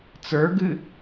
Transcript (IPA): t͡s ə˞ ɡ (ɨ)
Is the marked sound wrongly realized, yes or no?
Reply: no